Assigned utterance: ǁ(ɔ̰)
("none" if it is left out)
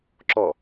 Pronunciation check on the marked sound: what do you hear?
ɔ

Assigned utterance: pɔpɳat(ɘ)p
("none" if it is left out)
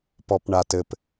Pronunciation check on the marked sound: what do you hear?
ɘ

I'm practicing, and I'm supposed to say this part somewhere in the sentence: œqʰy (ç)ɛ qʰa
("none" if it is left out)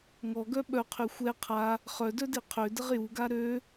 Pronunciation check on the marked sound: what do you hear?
xʷ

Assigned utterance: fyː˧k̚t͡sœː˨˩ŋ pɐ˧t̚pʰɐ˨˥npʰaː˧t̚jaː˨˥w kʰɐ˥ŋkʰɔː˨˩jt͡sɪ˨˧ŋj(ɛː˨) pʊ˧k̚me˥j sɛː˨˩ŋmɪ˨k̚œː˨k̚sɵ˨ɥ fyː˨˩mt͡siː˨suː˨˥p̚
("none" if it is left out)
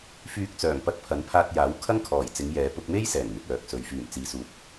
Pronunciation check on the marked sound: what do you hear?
ɛː˨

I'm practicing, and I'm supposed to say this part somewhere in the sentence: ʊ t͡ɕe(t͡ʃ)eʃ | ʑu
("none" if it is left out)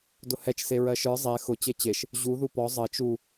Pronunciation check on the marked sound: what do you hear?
t͡ɕ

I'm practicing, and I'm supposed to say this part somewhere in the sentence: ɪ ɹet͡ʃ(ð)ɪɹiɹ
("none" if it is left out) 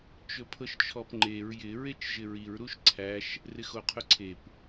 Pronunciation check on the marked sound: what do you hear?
ʒ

